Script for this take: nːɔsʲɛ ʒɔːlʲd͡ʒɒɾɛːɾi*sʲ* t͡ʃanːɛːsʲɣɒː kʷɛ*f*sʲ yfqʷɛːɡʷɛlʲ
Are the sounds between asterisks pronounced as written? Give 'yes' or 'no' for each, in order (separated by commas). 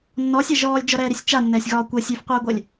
yes, no